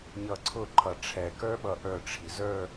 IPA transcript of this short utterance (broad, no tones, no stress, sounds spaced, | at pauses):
ɲ ʌ ǀʰ ʊ ǃʰ ʌ ʈ͡ʂʰ ɛ k ə˞ ɓ ʌ ʔ ə˞ ʈ͡ʂʰ i z ə˞